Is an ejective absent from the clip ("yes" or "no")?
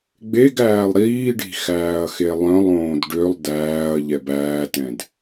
yes